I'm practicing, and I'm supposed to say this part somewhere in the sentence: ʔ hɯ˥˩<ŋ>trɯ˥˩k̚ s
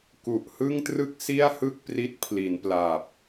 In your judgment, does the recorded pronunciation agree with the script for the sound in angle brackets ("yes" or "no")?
yes